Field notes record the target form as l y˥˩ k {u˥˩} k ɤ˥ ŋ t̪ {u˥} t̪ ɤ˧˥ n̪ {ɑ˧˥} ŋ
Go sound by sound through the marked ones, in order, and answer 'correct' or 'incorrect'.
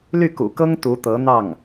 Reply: incorrect, incorrect, incorrect

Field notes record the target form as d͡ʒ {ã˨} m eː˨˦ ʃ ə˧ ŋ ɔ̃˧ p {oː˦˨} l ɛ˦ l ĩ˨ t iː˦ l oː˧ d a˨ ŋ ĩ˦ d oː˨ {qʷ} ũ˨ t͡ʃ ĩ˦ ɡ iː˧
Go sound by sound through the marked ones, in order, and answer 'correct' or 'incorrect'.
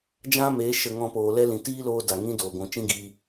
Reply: incorrect, incorrect, incorrect

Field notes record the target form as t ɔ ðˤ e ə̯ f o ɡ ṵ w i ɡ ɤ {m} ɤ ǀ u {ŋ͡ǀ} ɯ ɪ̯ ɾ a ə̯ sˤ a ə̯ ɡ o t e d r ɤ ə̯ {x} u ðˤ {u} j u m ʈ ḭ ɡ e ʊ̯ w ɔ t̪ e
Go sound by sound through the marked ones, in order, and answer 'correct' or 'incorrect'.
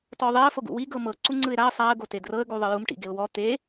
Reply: correct, correct, incorrect, incorrect

